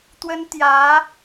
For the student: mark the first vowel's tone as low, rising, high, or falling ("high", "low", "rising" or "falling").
high